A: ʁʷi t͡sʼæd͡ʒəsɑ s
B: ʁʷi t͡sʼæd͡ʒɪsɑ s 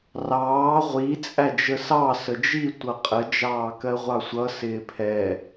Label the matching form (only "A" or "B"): A